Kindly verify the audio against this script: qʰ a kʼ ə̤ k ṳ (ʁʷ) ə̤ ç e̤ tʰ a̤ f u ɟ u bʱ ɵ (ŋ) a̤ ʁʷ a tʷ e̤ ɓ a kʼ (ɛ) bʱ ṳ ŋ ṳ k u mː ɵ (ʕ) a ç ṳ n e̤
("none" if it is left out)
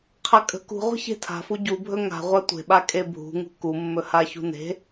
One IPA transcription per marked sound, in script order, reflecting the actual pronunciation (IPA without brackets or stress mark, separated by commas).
ʁʷ, ŋ, e, h